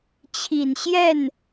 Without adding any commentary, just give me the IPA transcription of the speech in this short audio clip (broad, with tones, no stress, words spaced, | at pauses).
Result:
t͡ɕʰi˨˩nɕjɛ˥˩n